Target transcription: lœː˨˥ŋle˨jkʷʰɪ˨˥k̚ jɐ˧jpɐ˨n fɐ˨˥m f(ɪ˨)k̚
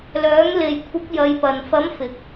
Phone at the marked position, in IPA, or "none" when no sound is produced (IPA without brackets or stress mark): ɪ˨